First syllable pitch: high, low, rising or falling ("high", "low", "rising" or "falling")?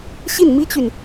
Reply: falling